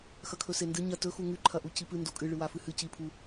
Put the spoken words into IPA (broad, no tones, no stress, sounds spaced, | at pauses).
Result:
x ɐ kʰ ɵ s e n d ɨ ɲ ɐ t ɵ x u ŋ ʉ ǃʰ ɐ ʔ u c i p ɨ n d o kʼ ɨ ɭ ɨ w a f ɨ h ɨ c i pʰ u